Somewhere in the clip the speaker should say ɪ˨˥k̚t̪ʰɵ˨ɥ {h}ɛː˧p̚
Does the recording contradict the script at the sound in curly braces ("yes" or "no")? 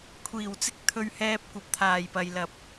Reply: no